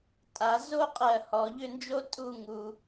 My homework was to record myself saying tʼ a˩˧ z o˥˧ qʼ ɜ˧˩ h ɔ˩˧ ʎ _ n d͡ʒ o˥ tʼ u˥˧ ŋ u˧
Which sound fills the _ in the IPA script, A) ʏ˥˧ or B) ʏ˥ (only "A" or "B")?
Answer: A